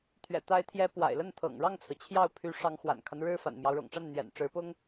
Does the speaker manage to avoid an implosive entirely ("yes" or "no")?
yes